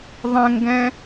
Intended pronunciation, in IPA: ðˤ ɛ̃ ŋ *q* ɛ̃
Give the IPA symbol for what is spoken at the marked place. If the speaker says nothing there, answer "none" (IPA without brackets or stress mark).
ɡ